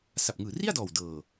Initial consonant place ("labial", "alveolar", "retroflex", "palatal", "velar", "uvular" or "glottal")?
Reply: alveolar